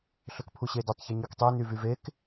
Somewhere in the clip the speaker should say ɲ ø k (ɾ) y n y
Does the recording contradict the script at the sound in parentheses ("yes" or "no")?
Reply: yes